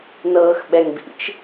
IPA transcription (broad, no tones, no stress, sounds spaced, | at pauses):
n ɤː x ɓ ɛ ŋ b ḭ t͡ʃ